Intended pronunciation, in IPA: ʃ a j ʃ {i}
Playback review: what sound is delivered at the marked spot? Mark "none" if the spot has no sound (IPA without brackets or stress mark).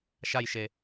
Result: e